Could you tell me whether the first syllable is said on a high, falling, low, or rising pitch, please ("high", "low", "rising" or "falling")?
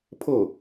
falling